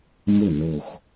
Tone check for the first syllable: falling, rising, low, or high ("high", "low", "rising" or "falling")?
falling